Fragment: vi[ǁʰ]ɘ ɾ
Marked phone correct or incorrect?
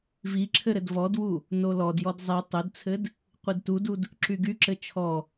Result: correct